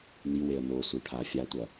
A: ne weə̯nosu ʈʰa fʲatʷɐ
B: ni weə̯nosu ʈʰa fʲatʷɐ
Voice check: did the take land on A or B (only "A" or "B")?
B